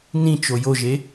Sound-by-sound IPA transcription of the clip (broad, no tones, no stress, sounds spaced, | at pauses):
n ĩ t͡ʃ o j o ʒ e